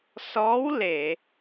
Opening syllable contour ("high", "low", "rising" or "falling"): rising